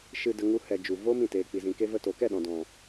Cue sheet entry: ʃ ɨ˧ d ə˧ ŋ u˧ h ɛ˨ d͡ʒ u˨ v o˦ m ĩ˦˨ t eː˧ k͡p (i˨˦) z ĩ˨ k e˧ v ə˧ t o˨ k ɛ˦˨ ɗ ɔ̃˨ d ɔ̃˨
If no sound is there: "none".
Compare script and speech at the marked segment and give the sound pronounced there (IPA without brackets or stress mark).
i˨